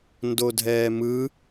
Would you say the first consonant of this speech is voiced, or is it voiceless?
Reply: voiced